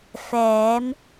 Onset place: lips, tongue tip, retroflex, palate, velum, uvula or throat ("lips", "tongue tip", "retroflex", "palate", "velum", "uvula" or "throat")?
lips